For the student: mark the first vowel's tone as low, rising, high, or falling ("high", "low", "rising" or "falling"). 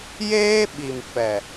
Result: high